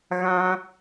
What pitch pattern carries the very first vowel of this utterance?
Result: high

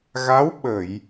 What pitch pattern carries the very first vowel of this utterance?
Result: rising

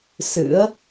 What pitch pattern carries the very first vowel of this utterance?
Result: rising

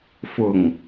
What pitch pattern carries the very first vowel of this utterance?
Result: low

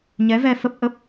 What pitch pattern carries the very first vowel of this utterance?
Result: rising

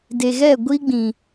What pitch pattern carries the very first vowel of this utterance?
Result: low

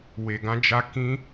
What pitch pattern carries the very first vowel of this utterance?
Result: low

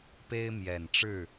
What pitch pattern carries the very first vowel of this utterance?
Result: high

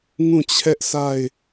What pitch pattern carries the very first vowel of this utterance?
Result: falling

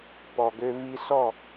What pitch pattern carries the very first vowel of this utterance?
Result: low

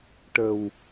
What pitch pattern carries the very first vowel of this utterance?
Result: low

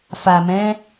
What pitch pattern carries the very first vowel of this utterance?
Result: low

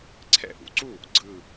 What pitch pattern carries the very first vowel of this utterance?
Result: falling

